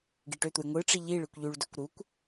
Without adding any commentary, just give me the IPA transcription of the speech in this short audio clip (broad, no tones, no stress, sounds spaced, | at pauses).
ɡ i ʈ ø t̪ u j ŋʷ ɯ ʈ͡ʂ i ʎ i ɭ ɯ kʷ ʎ y ɭ d ø kʷ ɾ u kʷ